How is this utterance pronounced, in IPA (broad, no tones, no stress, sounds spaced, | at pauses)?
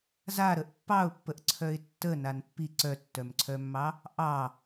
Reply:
z a ɾ ə ʔ pː ɑ ʊ̯ pː ə ʔ ǀʰ œ ɪ̯ tː ə n a n pː i ǀ œ tː œ m ǀʰ œ mː ɑ | ʔ ɑ